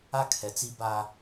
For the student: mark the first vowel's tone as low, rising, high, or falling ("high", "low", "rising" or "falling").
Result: high